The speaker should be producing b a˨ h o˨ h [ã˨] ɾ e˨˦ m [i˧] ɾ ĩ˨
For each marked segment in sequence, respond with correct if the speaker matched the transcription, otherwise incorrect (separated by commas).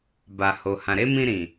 correct, incorrect